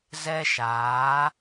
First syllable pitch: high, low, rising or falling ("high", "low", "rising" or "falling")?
high